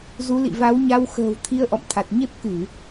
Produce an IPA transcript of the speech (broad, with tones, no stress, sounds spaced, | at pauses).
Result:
z u˨˦ l ḭ˧˨ v a˨˦ w ɲ a˧ w x ə̤ː˨˩ w t̪ʰ i˧ ə̯ ʔ ɔ̰˧˨ m t̪ʰ a˨˩ t̚ ɲ e˦˥ p̚ k ɨ˧˩˨